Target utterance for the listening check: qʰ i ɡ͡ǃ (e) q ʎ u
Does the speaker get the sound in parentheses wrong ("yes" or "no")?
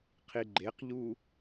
no